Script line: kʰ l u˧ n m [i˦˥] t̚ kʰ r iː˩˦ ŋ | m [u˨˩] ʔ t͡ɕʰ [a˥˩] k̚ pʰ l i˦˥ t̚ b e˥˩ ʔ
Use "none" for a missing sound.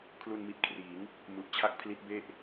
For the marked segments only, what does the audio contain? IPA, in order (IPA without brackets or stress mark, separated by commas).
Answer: i˨˩, u˨˩, a˥˩